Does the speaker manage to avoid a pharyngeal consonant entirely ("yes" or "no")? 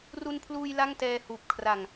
yes